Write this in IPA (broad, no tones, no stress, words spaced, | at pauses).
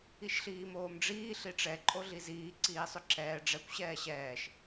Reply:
iʃɬiːmoːmɖ͡ʐiː ɬiʈ͡ʂɛ ǃʼoɮiziː ǀiːsˤʏǁɛː ɖ͡ʐɛkʷ ɕɛːɕɛːʃ